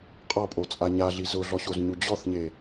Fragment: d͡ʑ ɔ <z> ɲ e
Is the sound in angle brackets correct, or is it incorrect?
incorrect: θ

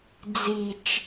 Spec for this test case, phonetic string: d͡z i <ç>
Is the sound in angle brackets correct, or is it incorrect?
incorrect: t͡ʃ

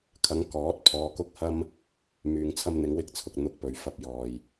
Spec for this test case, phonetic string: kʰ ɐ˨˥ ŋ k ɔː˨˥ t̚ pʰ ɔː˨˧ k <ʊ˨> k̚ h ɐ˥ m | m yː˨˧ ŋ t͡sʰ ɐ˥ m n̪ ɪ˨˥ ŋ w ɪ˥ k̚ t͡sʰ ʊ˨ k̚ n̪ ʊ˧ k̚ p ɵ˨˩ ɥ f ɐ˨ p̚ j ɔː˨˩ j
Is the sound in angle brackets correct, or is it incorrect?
incorrect: ʊ˥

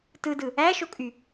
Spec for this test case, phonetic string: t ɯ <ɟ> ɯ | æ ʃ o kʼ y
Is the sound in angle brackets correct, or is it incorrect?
incorrect: d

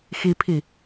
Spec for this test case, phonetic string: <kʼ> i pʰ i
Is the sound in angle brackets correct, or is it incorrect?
incorrect: x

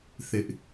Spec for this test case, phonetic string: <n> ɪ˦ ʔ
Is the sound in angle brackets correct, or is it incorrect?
incorrect: θ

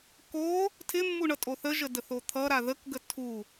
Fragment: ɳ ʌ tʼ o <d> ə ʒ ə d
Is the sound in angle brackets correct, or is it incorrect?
incorrect: θ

